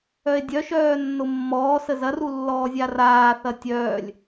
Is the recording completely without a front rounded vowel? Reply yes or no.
no